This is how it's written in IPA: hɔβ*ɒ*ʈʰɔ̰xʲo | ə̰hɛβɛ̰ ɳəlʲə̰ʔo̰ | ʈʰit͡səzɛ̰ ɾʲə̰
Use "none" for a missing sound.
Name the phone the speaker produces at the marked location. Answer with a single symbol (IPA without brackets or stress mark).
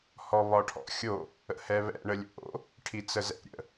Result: ɒ